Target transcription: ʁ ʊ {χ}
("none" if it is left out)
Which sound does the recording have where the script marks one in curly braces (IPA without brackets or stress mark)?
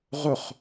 χ